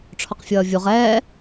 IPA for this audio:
ʈ͡ʂʰɔqfʲʌːvʲuʁ ɛː

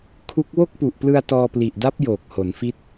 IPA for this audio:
kʰu˦˥k̚ wo˥˩k̚pu˨˩ʔplɯ˧a̯ tɔː˧pli˨˩ʔda˦˥p̚ joː˨˩k̚ho˩˦nfi˦˥t̚

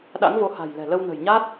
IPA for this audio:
ɗa̰˧˥ŋvo˨˦ha̤˨˩jlɛ̤˨˩ lə˧wnə̤˨˩j ɲa˦˥t̚

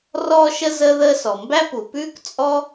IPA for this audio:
rɔː˧ʃə˧ zəː˥ðəː˥ sɔ˩mbæ˥pu˩pʉː˥k t͡sʼɔ˥

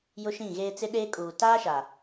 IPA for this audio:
jʊ˦ʃĩ˦˨ɣeː˦ t͡sɪ˦ɗeː˦kʼuː˨ taː˦ʃa˨

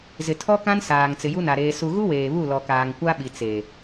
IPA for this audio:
zɪ˨tʰɔ˦kã˦n saː˨ŋ t͡sɪ˨ju˦na˨ ɾeː˨su˨ɣu˦ weː˨βu˦˨lɔ˨kaː˨ŋ kʷa˦ɓi˨t͡se˨

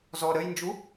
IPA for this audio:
zɔ ɾəjnd͡ʒu

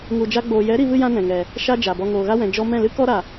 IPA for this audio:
ŋu˧d͡ʒa˦ɡ͡boː˧ jɛ˨˦ɾi˧vɨ˧ jã˦nɛ̃˨ŋɛ˨ | ʃa˦d͡ʒa˨bɔ˧ ŋoː˨ɣa˦wɛ̃˨ d͡ʒɔ˧ mɛ̃˦˨lɨ˦kɔ˦ɾa˨

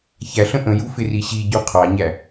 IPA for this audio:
çæɬə̃ ʔə̃ju fɪriɕiɟu qʰɑɲæ

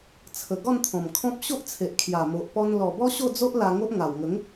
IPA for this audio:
t͡sʰə˨˩ɡɔ˥˧nt̪ʰɔ̃˨˩mkʰɔ̃˦p̚ ɕo˦ʔt͡sʰe˨ʔkʰja˨˩ mo˨ʔpɔ˧n lɔ˨˩bɔ˦ ɕo˥˧d͡zo˦ʔ la˧ŋo˦ʔ ŋa˨˩wŋə˨˦ŋ

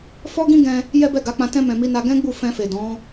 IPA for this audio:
fɔ˦ɡĩ˦ɡɛ̃˧ | jɛ˦bɛ˦˨ɡa˨˦k͡pã˧ tɛ̃˧mɛ̃˨ mi˧na˧ ɡɛ̃˦ɡ͡bu˦˨ fɛ̃˧fe˨ dɔ̃˨˦

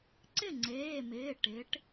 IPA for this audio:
ǀɪ˥˩ŋ͡ǀeː˩˧˩mɪː˩˧˩ ʈɪ˩˧ʈ

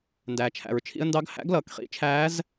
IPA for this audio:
ndæː˩t͡ʃʰæ̰˩ɹt͡ʃʰḭ˧ə̯ ndɑ˧˥ɡhæ̰˧˥ɡlʌː˩kχḭ˧˥ t͡ʃʰæː˧˥z

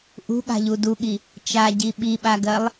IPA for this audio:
ʔṳɠa̤ʎu duɠi | t͡ʃaɟi ɓiɓaɡɜlˠ

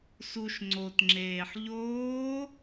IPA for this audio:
suʃ ŋ͡ǀotŋ͡ǁeːħ ʎoː

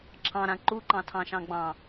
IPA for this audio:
ǁʰɑ̃ɾã ǃuǃɑ̃tʰɑ̃ʃɑ̃ ɡ͡bɑ̃

